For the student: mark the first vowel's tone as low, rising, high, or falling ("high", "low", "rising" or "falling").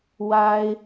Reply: high